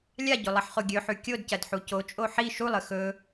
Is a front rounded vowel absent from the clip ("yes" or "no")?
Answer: yes